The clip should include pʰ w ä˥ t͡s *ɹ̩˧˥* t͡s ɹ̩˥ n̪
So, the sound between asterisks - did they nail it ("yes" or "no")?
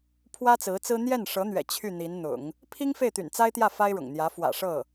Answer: yes